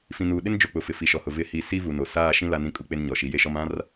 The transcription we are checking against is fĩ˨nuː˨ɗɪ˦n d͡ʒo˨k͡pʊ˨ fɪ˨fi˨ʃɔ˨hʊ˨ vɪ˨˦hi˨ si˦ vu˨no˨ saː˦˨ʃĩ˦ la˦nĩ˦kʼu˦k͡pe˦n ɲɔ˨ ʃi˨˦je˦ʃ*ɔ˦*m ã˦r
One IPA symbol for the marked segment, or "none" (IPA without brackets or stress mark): ɔ˦